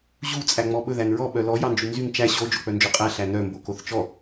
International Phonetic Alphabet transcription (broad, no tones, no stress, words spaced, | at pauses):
ʑu t͡sʼæŋ͡mɔɓɵ ðænɹɔ ɓœlɔ jɑnd͡ʒynzyŋ t͡ʃæ ɕo d͡ʒok͡pœnd͡ʒoqʼæ ɬænœ mbokoθt͡ʃɔ